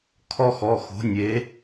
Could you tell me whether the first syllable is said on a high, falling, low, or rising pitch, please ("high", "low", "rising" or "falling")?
high